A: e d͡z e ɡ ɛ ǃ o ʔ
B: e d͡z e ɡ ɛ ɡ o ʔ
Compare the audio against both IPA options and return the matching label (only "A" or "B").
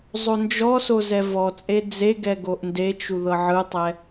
B